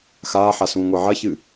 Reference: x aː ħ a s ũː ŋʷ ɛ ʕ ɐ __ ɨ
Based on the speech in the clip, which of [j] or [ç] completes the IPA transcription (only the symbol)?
ç